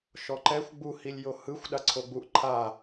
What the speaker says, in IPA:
ʃ ɔ ǃ ɛ xʷ ɡ͡b u h i lʲ j o h ɯ xʷ ɗ a ǀʰ o ɡ͡b u ʔ ǃʰ a

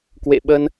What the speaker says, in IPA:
k w ḛ˧˨ ɓ ə˧ n

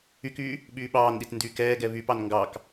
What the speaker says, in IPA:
y k yː | ɓ yː ɓ ɑː n ɗ i t n d yː k ɛː ɡ ɛ β y p ɑ n ŋ ɡ ɑ k

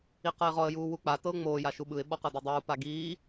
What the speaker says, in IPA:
i q ɤ ɪ̯ ʁ ɔ ə̯ j uː w u k͡p a t ɤ ʊ̯ ŋ͡m oː j a ʃ u ɓ ɯ ɪ̯ ɓ ɔ q ɤ d a dˤ uː p a ɡ iː

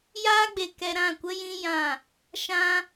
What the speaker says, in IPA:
j aː˦ ɡ͡b e˧ k ɛ˧ ɾ ã˦˨ kʷ ə˦ j ĩ˦ j ã˦˨ | ʃ ã˧

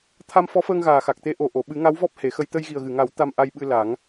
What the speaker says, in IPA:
t̪ʰ a˧ m f ɔ˧˥ f əː˧ ŋ ɣ aː˨˩ x a˨˩ k̚ t̪ e˧˥ ʔ o˨˩ ʔ o˨˩˨ ɓ ɨ˨˩˦ ŋ a˧˥ w v ɔ˦˥ p̚ h e˨˩˦ x ə˧ j t̪ ə˧ j ɣ i˨˩ ə̯ ɣ ɨ˨˩˨ ŋ a˨˩˦ w t̪ a˧ m ʔ a˧ j ɓ ɨ˧ l a˨˩˦ ŋ

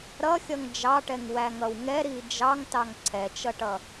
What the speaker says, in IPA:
ɾ ʌ xʲ ʌ ŋ d͡ʒ ɑ ʈ ɛ ŋ w æ ŋ ʌ w ŋ ɛ ɾ i d͡ʒ ɑ ŋ t ɑ ŋ ǀʰ ɛ t͡ʃ ʌ ʈ ʌ

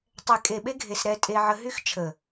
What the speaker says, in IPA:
tˤ ɛ˨ kʼ e˨ ɓ e˦ ɡʱ e˨ s ɾ ɛ˦ tʼ e˦ ʕ ə˦ ɦ y˦ x t͡ʃʰ ə˨

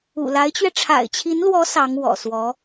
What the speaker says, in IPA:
ṵ˨˩ l a˧˥ ɪ̯ t͡ɕ ɥ ɛ˧ ʈ͡ʂʰ a̰˨˩ ɪ̯ t͡ɕʰ i˧˥ n l w ɔ˧˥ s ɑ˧˥ ŋ w ɔ̰˨˩ s w ɔ˧˥

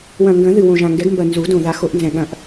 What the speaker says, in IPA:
w ɐ̃˨˩ ŋ ɡ ɐ̃˨˩˦ ð ɨ˨˩ w õ˨˩ ʒ ã˨˩ ŋ ɡ ɛ˨˩˦ ɡ m b ɐ˨˩ n z u˨˩˦ d õ˨˩ ð a˨˩˦ x o˨˩˦ ʔ n z ɛ̃˨˩ ɠ ɐ̃˨˩˦ ʔ

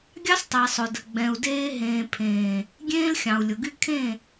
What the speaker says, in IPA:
ɡʲ ɑ˦ s tˤ ɛ˨ sˤ ʊ˨ d ə˨ ɡ͡b ɛ̃˨ u̯ d eː˦ ɦ ẽː˨ pʰ ẽː˨ | ɡʲ ẽː˦ l xʲ ɑ̃˨ u̯ lʲ ʊ˨ ɡ y˦ kʰ ẽ˦˨

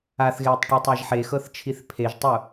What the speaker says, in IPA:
a θ ɣ eː tˤ ʈ i tˤ a ʒ ħ e x ɤ θ t͡ʃʰ i θ pʰ e ʒ tˤ u

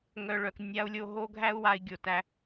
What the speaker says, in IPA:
ŋ œ˧ ɭ œ˧ k nʲ a˦ u̯ lʲ o˧ ɦ o˦ ɡʱ æ˦ u̯ w a˧ i̯ ɡʲ o˧ t æ˦

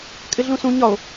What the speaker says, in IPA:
kʼ ɪ ɮ ũ s ũ ɲ ɒ o̯

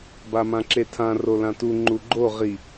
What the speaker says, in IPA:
b a m ã ǁ e tʰ ã r o l ã t u ŋ͡ǃ u ɡ͡ǃ o ʁ i

